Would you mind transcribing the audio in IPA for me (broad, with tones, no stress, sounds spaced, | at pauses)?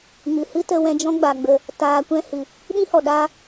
ŋ ɨ˨ h ɨ˦ t ə˧ w ɛ̃˧ d͡ʒ ɔ̃˦ ɡ͡b a˨ ɡ͡b ə˨ | t aː˧ kʷ ɛ̃˦ h ɨ˨ | ɗ ĩ˦ h ɔ˨ ɗ a˧